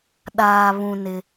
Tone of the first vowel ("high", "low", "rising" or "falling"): low